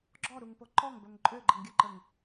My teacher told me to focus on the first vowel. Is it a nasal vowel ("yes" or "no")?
no